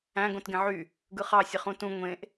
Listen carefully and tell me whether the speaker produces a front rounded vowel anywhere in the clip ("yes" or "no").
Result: yes